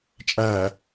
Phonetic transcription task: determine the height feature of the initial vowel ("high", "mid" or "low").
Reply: low